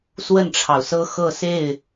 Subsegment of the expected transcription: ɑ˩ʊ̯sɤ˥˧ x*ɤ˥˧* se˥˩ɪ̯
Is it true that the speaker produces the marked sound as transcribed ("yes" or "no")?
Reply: yes